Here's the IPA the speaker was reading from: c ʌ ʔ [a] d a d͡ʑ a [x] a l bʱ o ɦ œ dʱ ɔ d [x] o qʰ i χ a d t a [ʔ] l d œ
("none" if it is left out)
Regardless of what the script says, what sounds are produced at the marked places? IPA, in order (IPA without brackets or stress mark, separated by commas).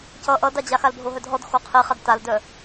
ʌ, x, x, none